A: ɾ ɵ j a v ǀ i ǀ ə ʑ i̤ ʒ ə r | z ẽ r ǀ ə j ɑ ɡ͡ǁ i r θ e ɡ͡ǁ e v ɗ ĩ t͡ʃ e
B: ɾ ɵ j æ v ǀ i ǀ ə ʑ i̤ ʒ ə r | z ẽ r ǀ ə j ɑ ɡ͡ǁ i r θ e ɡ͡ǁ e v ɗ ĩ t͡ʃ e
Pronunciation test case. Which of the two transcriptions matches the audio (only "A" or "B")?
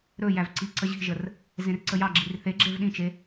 B